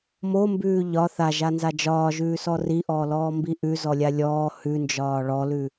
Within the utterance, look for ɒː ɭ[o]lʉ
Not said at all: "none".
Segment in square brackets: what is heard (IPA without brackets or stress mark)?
ɔ